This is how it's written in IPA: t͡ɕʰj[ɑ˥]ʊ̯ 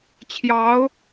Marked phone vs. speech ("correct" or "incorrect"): incorrect